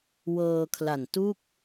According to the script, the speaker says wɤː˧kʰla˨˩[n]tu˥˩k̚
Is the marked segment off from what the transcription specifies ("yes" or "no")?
no